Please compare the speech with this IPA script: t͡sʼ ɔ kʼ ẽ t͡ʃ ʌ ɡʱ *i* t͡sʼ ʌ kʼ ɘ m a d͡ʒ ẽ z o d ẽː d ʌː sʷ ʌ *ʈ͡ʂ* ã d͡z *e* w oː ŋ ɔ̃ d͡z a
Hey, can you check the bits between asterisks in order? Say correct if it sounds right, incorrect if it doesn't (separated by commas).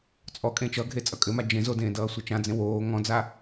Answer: incorrect, incorrect, incorrect